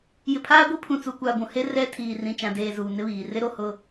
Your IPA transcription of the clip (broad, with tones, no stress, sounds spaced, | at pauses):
j ɪ˨ pʰ aː˦ ɡʷ i˦ pʰ ũ˨ t͡s u˨ kʷ aː˨ ɡʷ ũ˨ h e˦ r ɛ˦ tʰ iː˨ r ĩ˨ t͡ʃ ã˨ d eː˨ z uː˨ n ɪ˦ β iː˨ r ɪ˦ ɾ o˨ h ʊ˦˨